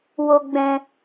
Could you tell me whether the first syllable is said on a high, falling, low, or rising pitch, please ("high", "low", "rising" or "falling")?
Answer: low